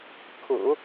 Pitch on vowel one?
low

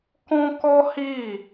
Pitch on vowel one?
high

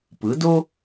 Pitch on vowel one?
rising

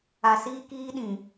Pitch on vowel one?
low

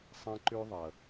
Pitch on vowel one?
high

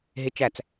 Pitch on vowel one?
high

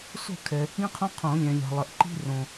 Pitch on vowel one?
falling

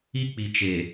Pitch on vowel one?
high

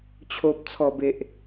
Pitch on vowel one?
low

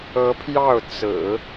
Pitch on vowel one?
rising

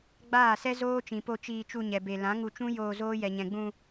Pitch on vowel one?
falling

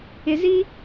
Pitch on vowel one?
low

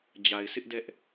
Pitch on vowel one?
low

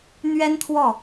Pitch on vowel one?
high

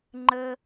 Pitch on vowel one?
high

